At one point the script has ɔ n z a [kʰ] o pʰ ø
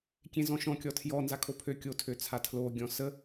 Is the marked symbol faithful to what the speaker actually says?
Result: yes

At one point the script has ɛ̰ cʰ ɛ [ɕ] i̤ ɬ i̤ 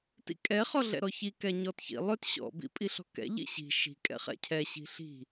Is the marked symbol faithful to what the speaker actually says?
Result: yes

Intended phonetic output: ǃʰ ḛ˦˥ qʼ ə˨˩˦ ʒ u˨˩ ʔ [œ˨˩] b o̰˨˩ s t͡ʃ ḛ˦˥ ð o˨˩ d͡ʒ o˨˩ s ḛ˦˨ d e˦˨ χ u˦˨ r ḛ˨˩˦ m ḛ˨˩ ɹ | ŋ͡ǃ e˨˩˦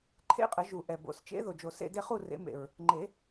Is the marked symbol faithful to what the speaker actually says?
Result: no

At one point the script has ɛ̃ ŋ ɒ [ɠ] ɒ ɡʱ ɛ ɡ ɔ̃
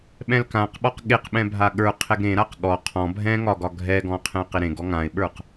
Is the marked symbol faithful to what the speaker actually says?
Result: no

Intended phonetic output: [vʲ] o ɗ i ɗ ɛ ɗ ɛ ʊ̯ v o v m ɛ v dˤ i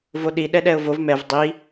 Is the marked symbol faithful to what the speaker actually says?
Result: no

